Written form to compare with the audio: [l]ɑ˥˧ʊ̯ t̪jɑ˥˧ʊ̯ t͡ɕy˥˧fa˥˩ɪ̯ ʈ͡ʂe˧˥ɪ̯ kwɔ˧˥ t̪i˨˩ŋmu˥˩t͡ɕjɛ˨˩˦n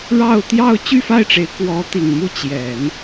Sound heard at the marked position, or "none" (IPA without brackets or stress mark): ɻ